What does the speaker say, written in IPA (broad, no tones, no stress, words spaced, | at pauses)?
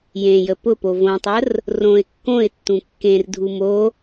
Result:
jẽjə pʊpo võtˤər | rõɪ̯ kːõɪ̯tːũ kːẽrdʱu mo